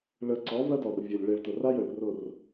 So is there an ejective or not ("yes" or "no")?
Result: no